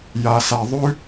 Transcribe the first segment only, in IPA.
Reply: j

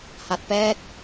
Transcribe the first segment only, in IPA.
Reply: h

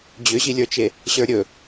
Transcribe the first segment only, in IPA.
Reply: d͡ʑ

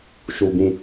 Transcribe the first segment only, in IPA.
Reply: ʃ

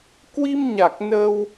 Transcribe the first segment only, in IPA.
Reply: k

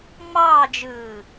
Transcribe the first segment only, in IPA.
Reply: ŋ͡m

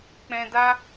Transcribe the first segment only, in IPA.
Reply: k͡p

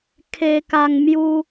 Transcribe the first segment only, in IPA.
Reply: kʰ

